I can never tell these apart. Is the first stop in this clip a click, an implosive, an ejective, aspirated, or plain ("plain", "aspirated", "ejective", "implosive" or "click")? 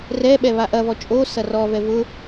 implosive